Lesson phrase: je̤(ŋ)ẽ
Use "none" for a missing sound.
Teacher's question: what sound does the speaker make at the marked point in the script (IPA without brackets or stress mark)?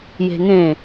ŋ